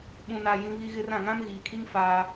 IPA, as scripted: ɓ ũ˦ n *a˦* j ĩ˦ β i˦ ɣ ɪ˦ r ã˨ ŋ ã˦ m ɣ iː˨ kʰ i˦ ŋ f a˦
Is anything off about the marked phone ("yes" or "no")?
no